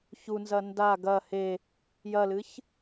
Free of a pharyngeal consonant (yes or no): yes